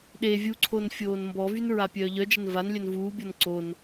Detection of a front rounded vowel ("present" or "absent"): present